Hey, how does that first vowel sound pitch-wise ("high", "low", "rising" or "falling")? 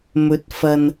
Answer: rising